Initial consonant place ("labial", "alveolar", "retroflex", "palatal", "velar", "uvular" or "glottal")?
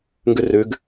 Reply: velar